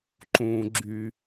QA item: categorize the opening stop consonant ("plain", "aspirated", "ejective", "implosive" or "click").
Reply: click